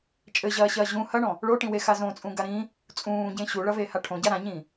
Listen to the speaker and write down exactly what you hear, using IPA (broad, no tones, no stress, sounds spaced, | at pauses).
t͡ʃʼ ɘ ʑ ɐː ɕ ɐː ʑ ũ h ɐ ɳ ɔ̃ | ɭ o ʈ ĩ w e x a z õ t͡sʼ ũ ɡ a ɾ ĩ | t͡sʼ ũː ɟ ẽ ɕ u ɭ ɐ v e h a ʈʰ õ ɟ a ɾ ã ɲ ĩ